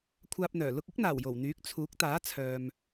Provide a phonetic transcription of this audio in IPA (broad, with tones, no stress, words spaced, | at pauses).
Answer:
kʷʰaː˧p̚n̪œː˨˩ lʊ˧k̚ɪ˥k̚n̪aː˨˩w jo˨˩wn̪yː˨˥k̚ t͡sʰuː˨˥k̚t̪aː˨˥ t͡sʰœː˨m